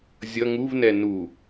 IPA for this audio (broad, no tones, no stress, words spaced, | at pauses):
zʲʌ ŋuvnɛ nu